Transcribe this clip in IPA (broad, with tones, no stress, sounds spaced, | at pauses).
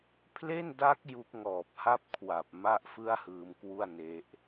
pʰ l e˥˩ n d a˦˥ k̚ j u˦˥ k̚ ŋ ɔː˨˩ p̚ h a˥˩ p̚ kʰ w a˨˩ p̚ m a˥˩ ʔ f ɯ˥˩ a̯ h ɯː˧ m k w u˥˩ a̯ n e˦˥ ʔ